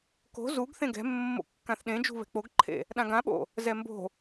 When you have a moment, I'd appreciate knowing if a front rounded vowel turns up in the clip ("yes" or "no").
no